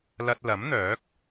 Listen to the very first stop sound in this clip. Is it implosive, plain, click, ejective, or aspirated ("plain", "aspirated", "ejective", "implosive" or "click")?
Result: plain